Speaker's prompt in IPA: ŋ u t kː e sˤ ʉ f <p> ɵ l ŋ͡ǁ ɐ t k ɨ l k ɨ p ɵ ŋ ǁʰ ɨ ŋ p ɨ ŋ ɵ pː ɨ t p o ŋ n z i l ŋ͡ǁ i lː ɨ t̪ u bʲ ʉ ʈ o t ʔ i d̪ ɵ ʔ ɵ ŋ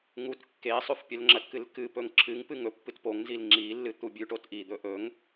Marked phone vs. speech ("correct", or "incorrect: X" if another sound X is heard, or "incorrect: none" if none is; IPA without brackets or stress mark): incorrect: pʲ